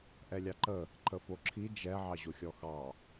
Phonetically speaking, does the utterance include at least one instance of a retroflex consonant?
no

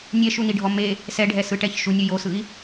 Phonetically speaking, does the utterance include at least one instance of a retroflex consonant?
yes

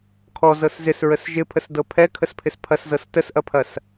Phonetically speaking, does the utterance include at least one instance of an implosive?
no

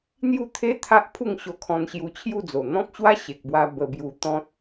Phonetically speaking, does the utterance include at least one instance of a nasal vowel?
yes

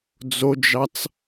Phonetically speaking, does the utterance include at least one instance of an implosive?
no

